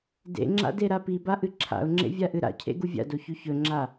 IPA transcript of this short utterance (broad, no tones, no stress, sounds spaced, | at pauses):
d ḛ ŋ͡ǁ a̰ d e ɾ a p i b a ʔ ɨ ǁʰ a̰ ʊ̯ ŋ͡ǁ ḛ vʲ a ʔ ɨ ɾ a̰ cʰ ḛ ɡ u vʲ a̰ d o ç ʉ ç ɵ ŋ͡ǁ a